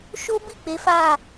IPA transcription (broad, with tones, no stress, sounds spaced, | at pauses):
ʃ o˦ b i˦˨ k͡p e˨˦ f a˦˨